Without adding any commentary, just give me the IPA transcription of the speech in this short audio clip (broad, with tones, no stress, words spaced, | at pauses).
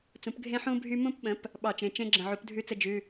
t͡sũ˩˥pɡʱẽ˦˥ ħũ˦˥ bʱy˦˥ mũ˦˥pɓə̃˩˥p | ɓɑ˧˩˧t͡ʃẽ˩˧˩t͡ʃẽ˦˥ɡ͡ǁə̃˧˩ ʕu˩˥pdʱʉ˥˨t͡sə˥˨ d͡ʒʉ˩˧˩